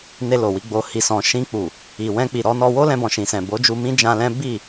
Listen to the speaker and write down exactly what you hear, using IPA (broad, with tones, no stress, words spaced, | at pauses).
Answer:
ne˧lo˨wi˧ ɡ͡bo˨hi˨sɔ̃˨ ʃĩ˧k͡pu˨ | i˨wɛ̃˧ k͡pi˨ɾɔ˧nɔ˧ wo˦lɛ̃˧bɔ̃˨ ʃĩ˨sɛ̃˨ bo˨˦d͡ʒu˧mĩ˦ d͡ʒã˧lɛ̃˦ bi˦˨